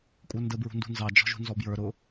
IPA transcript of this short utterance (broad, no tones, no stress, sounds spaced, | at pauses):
kʷʼ ə˞ n d ə b ɹ ṳ n d ṳ n z ɑ d͡ʒ ɔ̤ ʒ ṳ n z ɔ b j ə˞ ɾ ʊ